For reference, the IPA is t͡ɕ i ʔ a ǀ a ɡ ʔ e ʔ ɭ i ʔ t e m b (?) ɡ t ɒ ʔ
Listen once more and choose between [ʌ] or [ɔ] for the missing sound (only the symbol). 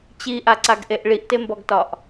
ɔ